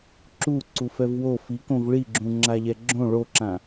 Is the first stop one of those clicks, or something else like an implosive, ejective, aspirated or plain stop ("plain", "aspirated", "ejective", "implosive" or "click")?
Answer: click